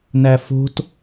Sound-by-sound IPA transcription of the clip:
n æ f o̤ t

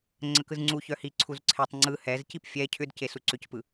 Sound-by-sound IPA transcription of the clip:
ŋ͡ǀ ə k ɯ z ŋ͡ǀ u ç œ h i ǀʰ u z ǀʰ e tˤ ŋ͡ǀ ɯ h ɛ z c i p fʲ ɛ cʰ ʏ d c e s u ǀ ʏ c p ɯ

